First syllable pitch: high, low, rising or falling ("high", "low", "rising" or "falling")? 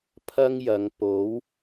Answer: high